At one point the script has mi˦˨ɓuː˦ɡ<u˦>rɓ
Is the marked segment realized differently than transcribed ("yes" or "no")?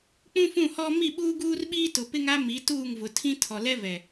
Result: yes